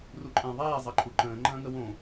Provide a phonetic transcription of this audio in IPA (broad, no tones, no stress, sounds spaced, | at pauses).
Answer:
r u ǃʼ ɛ̃ ðˤ eː zˤ ɐ ǃʼ u ǃ ə̃ː ŋ͡ǃ ɐ̃ː ŋ ə w õ